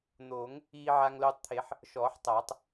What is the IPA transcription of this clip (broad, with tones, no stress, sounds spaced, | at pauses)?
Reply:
n̪ oː˨˩˦ ŋ | iː˧ ʕ a˧ ŋ l oː˧ tˤ t̪ʰ e˨˩˦ ħ | ʃ ɔː˨˩˦ ħ tˤ aː˨˩˦ tˤ